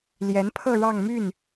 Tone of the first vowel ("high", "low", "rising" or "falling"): rising